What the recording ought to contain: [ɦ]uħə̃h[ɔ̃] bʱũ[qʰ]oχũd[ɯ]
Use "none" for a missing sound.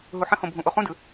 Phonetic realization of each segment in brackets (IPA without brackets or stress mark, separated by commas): ɦ, õ, ʔ, ɯ